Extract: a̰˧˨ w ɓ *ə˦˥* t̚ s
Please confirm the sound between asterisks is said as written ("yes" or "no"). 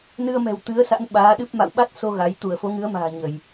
no